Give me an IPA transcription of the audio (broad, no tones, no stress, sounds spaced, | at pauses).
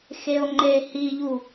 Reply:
x e o̯ ŋ͡ǃ e h i ʎ u